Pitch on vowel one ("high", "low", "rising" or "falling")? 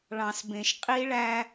low